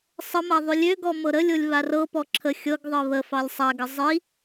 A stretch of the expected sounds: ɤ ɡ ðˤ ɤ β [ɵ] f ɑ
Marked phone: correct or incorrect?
incorrect